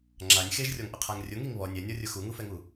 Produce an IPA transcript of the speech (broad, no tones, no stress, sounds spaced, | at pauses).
ŋ͡ǁ a nʲ x e ʒ rʲ ɔ ŋ ʔ ʊ qʰ a ŋ rʲ ʊ ŋ i ŋ β ɔ nʲ ɛ nʲ ɔ rʲ ʊ x u ŋ u f ɛ ŋ u